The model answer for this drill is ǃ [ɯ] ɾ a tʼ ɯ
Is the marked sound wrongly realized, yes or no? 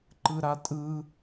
no